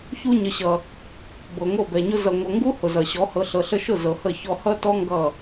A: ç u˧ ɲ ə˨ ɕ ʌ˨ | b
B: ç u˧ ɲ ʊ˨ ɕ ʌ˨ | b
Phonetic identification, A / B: A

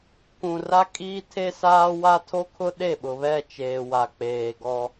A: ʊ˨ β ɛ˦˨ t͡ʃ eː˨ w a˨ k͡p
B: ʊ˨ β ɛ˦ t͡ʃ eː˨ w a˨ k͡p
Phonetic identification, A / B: A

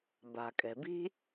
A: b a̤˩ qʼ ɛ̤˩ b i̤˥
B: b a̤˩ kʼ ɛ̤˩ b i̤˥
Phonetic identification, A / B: B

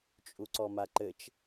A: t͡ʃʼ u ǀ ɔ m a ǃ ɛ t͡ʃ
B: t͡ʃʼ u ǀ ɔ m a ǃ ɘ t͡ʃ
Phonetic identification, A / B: B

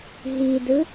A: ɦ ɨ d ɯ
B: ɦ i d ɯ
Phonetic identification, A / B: B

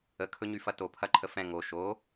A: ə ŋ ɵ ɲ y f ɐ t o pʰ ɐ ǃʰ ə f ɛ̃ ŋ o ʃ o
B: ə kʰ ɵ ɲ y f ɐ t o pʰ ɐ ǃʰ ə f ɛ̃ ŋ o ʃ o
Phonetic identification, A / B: B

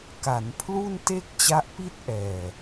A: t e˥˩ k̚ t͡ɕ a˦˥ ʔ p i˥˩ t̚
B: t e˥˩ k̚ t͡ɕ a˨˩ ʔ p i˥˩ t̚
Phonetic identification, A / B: A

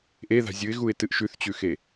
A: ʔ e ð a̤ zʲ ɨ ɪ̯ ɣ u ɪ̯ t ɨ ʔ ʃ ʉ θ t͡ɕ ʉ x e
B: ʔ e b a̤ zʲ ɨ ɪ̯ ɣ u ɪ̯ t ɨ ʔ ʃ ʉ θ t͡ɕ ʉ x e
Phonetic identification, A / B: A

